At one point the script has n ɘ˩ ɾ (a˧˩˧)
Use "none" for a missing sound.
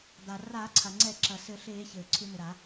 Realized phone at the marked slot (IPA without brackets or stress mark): a˧˩˧